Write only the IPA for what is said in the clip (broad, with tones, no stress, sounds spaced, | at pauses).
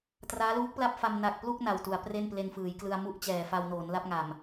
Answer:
t r aː˦˥ l uː˦˥ k̚ p l a˥˩ p̚ f a˧ m n a˨˩ k̚ p l u˥˩ k̚ n a˨˩ w t u˩˦ a̯ p r e˥˩ n p l e˧ n f ɯː˩˦ j k l ɯ˧ a̯ m u˥˩ ʔ t͡ɕ ɛː˨˩ f a˧ w n oː˩˦ n l a˦˥ p̚ ŋ a˨˩ m